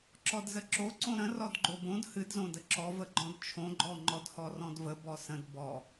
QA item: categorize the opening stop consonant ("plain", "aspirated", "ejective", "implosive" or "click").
click